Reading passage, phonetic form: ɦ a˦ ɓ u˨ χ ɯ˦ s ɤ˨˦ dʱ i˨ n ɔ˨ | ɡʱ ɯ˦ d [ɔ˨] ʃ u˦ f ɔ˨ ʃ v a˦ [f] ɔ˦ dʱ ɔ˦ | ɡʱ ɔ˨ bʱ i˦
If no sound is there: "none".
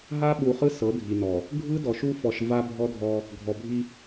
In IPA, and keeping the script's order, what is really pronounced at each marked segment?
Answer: ɔ˨, bʱ

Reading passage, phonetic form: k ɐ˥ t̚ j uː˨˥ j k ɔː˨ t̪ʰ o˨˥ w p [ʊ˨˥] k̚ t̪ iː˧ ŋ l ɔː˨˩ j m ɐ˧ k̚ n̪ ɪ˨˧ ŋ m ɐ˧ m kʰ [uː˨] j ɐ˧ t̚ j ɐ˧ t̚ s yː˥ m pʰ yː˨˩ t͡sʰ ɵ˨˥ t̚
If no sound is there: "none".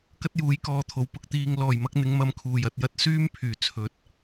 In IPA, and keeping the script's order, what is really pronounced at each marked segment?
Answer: ʊ˨, uː˨˩

